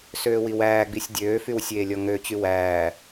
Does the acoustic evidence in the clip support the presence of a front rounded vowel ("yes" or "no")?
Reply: yes